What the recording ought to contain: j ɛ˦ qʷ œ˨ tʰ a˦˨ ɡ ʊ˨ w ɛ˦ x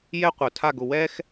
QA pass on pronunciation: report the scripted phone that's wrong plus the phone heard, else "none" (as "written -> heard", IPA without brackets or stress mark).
none